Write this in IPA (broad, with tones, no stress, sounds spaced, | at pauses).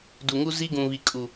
d u˨ ŋ u˦ z i˦ ɡ ũ˨ β i˨ kʼ u˨